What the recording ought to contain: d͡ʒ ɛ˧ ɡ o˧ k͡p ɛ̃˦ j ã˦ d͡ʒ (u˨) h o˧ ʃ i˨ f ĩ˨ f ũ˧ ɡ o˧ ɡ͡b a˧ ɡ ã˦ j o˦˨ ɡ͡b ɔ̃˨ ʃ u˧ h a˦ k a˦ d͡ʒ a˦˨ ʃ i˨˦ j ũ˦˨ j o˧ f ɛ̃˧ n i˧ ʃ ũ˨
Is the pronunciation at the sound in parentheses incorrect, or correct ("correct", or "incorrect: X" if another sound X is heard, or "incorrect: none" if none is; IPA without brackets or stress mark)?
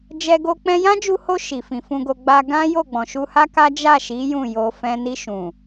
incorrect: u˧